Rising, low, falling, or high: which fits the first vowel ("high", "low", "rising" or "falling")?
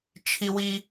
low